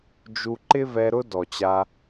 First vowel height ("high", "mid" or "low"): high